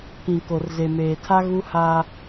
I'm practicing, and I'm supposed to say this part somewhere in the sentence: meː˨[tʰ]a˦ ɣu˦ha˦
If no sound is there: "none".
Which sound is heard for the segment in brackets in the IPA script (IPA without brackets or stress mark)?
tʰ